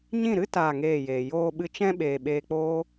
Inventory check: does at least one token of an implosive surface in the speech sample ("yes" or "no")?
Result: yes